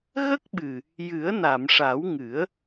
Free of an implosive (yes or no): no